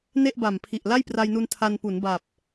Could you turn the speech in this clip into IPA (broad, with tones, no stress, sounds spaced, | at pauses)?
n e˥˩ ʔ b a˨˩ m pʰ i˨˩ ʔ l a˥˩ j p r a˧ j n u˧ n tʰ a˧ n p u˩˦ n b a˨˩ p̚